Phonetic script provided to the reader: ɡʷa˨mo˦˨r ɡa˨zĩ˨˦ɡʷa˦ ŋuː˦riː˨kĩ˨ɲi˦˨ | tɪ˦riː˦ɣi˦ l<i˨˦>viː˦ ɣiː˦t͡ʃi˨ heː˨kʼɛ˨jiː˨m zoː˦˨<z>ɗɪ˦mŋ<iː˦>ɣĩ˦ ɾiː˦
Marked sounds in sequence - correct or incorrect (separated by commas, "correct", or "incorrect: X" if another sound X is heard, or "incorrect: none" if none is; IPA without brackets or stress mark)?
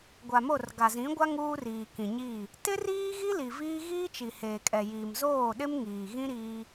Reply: incorrect: i˨, incorrect: none, incorrect: iː˨